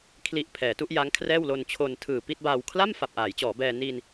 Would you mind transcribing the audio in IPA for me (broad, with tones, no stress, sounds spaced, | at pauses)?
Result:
kʰ l i˨˩ ʔ pʰ ɛː˩˦ t u˥˩ ʔ j a˦˥ ŋ kʰ r ɛː˥˩ w l o˧ n t͡ɕʰ o˧ n tʰ ɯː˨˩ p i˥˩ t̚ b aː˧ w kʰ l a˥˩ m f a˨˩ p̚ ʔ aː˩˦ j t͡ɕ ɔː˩˦ b ɛː˧ n i˧ n